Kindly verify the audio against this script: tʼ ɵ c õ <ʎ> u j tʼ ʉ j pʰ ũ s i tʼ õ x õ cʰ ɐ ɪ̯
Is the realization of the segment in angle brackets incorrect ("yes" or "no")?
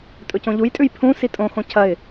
no